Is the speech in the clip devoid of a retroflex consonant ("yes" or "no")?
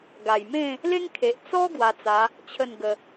yes